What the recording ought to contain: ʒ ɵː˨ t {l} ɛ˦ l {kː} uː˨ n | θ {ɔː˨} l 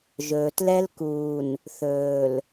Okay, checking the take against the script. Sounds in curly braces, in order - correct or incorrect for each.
correct, incorrect: k, incorrect: ɵː˨

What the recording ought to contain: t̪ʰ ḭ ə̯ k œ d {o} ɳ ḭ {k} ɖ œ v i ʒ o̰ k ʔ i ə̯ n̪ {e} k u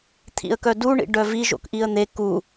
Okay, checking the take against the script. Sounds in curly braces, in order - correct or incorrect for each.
incorrect: u, incorrect: none, correct

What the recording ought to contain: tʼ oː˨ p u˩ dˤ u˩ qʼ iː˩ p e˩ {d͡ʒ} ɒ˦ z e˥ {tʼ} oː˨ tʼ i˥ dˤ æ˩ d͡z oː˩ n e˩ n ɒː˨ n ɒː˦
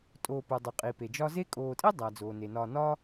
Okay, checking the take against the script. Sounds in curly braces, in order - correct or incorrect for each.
correct, incorrect: kʼ

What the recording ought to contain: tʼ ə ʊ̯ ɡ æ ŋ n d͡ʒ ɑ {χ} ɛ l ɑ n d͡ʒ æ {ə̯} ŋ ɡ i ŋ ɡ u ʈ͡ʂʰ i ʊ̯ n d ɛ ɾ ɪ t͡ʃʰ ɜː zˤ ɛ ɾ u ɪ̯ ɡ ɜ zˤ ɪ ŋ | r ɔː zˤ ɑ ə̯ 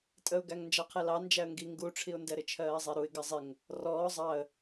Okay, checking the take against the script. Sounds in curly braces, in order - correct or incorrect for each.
incorrect: qʰ, correct

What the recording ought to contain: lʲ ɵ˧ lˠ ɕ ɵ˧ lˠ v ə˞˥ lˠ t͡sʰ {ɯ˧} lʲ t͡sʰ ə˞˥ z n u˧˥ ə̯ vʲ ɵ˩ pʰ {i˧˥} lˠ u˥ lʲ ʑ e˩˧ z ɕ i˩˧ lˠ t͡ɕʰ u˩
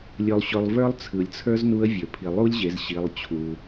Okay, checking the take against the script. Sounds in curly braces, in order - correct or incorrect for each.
incorrect: ɯ˩, incorrect: i˩

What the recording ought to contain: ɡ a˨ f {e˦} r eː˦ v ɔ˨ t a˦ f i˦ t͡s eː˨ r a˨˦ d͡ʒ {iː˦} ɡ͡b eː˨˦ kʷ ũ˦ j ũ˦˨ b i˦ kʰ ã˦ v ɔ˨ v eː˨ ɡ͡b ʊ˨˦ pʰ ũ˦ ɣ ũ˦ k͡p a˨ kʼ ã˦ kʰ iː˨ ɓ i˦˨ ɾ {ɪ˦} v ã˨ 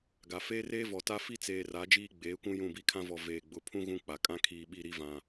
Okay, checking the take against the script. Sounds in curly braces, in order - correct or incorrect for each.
incorrect: eː˦, correct, incorrect: i˦

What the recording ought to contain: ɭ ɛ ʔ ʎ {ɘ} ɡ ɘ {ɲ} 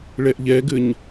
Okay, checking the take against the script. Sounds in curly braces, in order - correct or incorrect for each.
incorrect: ɛ, correct

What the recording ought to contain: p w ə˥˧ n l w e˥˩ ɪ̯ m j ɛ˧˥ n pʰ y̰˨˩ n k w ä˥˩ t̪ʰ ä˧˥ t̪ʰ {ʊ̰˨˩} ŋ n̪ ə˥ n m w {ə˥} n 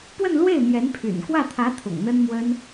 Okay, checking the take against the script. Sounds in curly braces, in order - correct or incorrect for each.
correct, correct

